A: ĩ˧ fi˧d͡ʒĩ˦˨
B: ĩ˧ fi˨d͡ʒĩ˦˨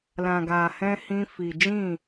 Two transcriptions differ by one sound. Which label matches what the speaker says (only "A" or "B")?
B